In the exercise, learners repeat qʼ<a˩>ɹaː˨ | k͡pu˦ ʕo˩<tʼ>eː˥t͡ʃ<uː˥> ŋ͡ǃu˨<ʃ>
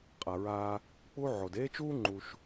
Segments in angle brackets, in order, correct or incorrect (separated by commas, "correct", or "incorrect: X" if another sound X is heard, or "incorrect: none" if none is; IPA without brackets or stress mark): correct, incorrect: d, correct, correct